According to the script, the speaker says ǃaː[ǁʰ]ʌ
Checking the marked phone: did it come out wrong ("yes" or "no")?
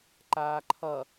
yes